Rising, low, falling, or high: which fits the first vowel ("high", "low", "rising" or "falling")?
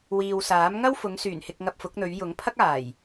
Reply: low